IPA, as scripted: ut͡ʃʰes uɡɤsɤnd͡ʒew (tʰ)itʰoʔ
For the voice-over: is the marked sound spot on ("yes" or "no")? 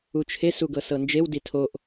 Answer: no